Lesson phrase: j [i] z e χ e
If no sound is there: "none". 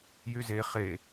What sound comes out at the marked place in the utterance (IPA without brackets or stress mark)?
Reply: y